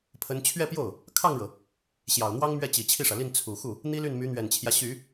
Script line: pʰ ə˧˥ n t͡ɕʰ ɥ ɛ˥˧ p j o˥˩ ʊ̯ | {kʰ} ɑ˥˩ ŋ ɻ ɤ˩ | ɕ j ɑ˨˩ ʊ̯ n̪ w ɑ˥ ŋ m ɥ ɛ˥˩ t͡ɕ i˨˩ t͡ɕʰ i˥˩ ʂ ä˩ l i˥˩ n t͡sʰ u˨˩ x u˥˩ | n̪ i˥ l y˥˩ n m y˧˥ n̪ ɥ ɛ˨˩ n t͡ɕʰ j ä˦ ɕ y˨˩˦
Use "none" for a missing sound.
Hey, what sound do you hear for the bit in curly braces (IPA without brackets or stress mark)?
kʰ